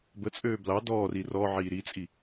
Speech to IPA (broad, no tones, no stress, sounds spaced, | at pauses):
b ə t͡sʼ øː b l ɑ d ɔː r i r ɔ ʕ iː ɾ i t͡sʼ i